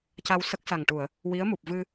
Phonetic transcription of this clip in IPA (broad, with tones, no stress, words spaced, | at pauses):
ca˧w sə˦˥k̚sa˨˩ŋʈu˨˩˨ə̯ | wi˧˥ə̯mu˨˩p̚vɨ˧